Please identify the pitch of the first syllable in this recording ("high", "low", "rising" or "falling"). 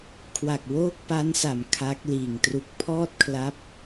low